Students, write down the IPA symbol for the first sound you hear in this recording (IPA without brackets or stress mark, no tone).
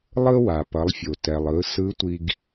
lˠ